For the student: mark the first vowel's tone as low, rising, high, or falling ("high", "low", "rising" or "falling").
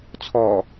low